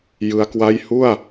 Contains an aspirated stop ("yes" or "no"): no